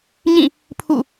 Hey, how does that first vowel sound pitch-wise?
falling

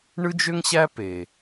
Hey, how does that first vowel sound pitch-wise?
high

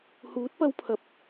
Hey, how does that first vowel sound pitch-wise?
rising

